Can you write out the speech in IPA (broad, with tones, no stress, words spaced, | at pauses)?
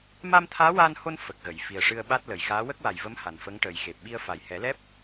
ma˧mt̪ʰaː˧˥ waː˧nho˧n fə˨˩k̚ɣə˨˩˨j fi˨˩ə̯ʂɨ˧ə̯ɓa˦˥t̚ lə˨˩jxaː˧˥ wə˦˥k̚wa˨˩jvə˧˥m ha˨˩nfə˧˥ŋʈəː˨˩j xe˨˩p̚ɓi˧ə̯ fa˨˩jhɛ˨˩˦lɛ˦˥p̚